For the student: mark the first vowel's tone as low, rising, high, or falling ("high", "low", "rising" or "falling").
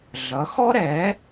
rising